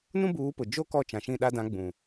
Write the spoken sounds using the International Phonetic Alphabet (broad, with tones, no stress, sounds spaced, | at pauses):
n ũ˦ b uː˨˦ p ʊ˨ d͡ʒ o˦ k ɔ˦˨ t͡ʃ ã˨ ʃ ĩ˦˨ ɗ a˦ d ã˨˦ ɡ͡b ũ˨